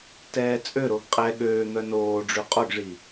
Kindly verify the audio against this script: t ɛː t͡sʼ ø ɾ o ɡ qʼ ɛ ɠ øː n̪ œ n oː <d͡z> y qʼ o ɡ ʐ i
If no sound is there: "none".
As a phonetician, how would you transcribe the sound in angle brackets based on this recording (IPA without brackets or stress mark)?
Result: ɖ͡ʐ